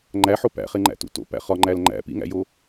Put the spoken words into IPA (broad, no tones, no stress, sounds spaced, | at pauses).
ŋ͡ǃ æ ħ o p æ̰ χ e ŋ͡ǃ æ̰ t ṵ t o̰ p æ̰ χ ɒ ŋ͡ǃ æ l ŋ͡ǃ æ̰ p ḭ ŋ æ̰ j o